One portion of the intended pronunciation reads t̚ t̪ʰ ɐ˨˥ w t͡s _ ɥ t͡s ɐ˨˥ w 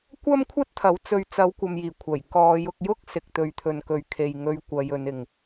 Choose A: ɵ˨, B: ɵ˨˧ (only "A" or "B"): B